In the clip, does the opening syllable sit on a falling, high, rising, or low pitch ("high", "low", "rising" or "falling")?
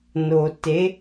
low